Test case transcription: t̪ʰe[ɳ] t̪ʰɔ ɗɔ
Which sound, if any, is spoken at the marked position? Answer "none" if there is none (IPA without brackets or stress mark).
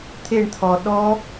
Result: ɳ